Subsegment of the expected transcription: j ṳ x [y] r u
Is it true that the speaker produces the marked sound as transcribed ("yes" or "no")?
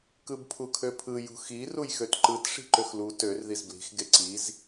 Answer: no